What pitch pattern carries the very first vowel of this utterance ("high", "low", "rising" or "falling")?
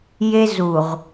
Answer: high